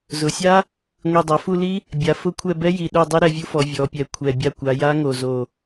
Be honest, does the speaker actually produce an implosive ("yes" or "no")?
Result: yes